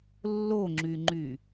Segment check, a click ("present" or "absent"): present